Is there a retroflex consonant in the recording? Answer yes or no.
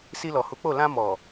no